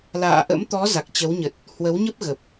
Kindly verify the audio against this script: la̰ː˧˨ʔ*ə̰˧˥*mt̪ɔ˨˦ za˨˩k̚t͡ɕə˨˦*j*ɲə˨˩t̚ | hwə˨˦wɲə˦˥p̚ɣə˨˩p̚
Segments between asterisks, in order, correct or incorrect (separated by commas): correct, incorrect